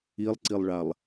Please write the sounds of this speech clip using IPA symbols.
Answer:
i lˠ ǀ i lˠ ɭ a lˠ

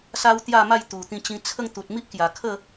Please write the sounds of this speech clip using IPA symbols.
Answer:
s a˦ w t̪ j a˥˧ m a˥˧ j t̪ u˨˩ t̪ ĩ˧ t͡ɕ ĩ˧ t͡sʰ ə˥˧ ŋ t̪ u˨ t̚ m i˦ ʔ k j a˨˩ kʰ ə˥˧

